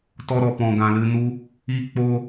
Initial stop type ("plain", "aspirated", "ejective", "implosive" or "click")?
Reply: plain